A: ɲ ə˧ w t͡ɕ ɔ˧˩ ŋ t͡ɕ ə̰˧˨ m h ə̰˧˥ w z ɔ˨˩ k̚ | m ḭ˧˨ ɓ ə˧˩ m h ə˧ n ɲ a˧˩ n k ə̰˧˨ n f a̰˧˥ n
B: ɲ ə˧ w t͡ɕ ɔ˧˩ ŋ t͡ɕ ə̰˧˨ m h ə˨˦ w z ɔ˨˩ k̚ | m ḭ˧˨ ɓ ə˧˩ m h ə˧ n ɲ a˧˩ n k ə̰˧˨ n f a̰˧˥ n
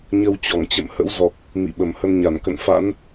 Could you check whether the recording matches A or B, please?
A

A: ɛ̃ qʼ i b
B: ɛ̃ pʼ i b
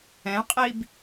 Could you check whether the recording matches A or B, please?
A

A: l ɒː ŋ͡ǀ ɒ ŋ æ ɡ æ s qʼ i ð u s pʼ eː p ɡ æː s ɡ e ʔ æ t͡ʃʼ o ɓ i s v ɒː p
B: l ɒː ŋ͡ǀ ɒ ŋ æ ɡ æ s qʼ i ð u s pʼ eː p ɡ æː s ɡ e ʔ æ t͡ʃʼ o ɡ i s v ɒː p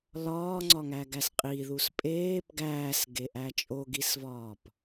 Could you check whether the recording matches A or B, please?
B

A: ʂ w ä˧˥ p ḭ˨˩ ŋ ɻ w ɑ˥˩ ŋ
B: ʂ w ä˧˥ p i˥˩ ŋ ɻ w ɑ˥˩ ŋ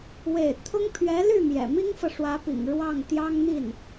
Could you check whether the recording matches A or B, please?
A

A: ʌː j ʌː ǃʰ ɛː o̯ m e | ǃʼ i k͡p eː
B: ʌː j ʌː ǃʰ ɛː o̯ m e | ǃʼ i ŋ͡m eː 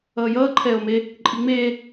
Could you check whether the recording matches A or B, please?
B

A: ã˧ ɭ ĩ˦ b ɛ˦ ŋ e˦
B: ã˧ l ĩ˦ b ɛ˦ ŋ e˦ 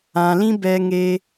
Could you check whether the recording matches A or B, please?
B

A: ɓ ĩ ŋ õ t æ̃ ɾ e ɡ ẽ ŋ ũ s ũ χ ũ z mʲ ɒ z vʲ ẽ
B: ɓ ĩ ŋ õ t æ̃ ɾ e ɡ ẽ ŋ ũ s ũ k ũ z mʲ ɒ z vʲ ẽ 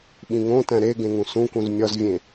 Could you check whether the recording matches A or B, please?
B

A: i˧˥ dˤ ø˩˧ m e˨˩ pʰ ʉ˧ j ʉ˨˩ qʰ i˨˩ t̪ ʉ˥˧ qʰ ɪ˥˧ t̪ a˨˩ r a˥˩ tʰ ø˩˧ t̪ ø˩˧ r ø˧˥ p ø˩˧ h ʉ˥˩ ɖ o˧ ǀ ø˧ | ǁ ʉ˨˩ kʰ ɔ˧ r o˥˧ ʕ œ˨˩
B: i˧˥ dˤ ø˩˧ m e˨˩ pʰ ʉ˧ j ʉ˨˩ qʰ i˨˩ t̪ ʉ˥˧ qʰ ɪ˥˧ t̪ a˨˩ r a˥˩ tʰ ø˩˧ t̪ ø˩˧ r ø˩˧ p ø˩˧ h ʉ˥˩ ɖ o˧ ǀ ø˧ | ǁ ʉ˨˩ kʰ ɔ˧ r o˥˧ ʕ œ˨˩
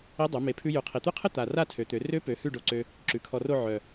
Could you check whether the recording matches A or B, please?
A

